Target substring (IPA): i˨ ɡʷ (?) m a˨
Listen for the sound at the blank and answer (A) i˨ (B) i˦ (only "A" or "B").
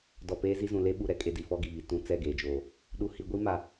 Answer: B